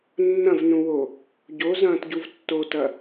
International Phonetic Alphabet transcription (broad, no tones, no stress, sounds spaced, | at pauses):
nː ɐ̃ v n ũ w o | ɟ o z ɐ̃ː t ɟ u v tː o t ɐ